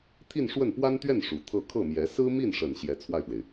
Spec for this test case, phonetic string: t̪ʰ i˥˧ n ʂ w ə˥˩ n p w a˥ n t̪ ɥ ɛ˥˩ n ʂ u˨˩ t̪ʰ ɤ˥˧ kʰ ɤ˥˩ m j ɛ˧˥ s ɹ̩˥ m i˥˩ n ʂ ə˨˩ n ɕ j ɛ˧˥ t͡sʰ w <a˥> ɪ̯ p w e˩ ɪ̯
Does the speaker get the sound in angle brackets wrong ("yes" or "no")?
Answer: yes